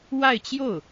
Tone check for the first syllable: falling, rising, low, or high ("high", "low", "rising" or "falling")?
falling